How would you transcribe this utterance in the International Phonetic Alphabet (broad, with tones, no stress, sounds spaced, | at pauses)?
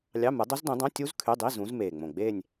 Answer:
lʲ ɑ˧˥˧ m ɯ˨˦ dˤ o˦˥ z d ũ˨˦ dˤ õ˧˥˧ tʲ u˦˥ z kʰ y˧˥˧ dˤ i˧˥˧ z ũ˨˦ z m eː˨˩ ŋ͡m õ˨˩ ɡ͡b eː˥˧ nʲ